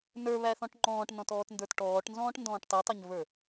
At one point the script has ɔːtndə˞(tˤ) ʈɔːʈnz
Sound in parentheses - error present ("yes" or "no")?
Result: yes